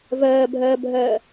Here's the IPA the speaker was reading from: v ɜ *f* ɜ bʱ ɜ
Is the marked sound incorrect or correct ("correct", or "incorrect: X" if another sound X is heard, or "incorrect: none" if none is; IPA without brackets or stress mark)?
incorrect: bʱ